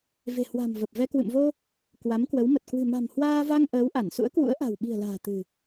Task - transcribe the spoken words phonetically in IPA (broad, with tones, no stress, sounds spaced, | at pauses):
v e̤˨˩ h w a̤˨˩ m v ə˨˩ p̚ v ɛ˧ k w ɨ̰˧˨ m v o˧ | k w a˨˦ m k w ə˨˦ w m ə˨˩ t̚ k w ɨ̤˨˩ m a̤˨˩ m h w aː˧ v a˧ ŋ ʔ əː˨˦ w ʔ a˧˩ n s ṵ˧˥ ə̯ k w ṵ˧˥ ə̯ ʔ a̤˨˩ w ɓ i̤˨˩ ə̯ l a̤ː˨˩ t̪ ɨ̤˨˩